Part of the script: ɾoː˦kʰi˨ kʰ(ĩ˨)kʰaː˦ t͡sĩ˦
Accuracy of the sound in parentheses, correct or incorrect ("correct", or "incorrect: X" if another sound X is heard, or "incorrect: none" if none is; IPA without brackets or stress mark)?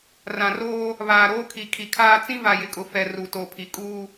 incorrect: i˨